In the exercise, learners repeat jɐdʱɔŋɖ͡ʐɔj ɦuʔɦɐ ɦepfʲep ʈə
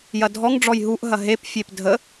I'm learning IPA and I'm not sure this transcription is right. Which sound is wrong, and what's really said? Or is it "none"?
ʈ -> dʱ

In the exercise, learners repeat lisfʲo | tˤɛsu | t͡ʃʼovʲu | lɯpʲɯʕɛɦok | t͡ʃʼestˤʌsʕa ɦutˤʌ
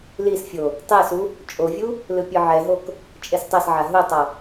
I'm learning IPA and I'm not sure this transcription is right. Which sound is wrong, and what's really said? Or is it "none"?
none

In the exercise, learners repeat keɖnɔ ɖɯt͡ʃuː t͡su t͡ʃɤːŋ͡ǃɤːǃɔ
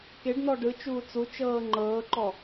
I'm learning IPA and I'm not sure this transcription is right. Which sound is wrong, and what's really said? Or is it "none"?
none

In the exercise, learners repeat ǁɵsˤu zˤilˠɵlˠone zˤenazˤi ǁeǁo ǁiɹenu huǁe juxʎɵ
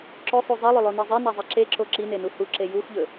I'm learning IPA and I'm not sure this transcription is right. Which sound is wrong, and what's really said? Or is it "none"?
ɹ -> n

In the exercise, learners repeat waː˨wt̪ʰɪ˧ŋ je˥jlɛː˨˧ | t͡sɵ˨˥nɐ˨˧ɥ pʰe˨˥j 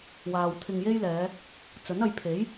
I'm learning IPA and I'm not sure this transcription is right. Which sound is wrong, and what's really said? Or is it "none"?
ɥ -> j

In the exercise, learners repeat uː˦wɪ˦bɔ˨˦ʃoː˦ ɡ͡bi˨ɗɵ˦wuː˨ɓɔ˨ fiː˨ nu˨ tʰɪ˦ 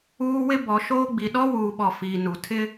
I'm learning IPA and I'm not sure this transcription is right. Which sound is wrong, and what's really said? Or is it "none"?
ɵ˦ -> ɔ˦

